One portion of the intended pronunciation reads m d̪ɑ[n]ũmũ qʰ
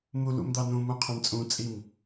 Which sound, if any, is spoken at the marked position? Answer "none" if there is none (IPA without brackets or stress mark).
n